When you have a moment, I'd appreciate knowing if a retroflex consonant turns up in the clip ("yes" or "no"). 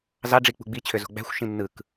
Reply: yes